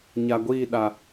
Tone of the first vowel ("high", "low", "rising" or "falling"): low